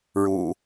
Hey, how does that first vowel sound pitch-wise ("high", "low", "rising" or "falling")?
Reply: low